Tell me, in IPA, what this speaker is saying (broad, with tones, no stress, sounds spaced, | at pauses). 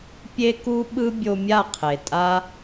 pʲ e˧ k u˧ ɓ ɯ˧ bʲ o˧ mʲ a˦˨ qʰ e˨ tʼ a˦